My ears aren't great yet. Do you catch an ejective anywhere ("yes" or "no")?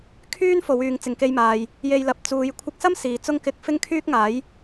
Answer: no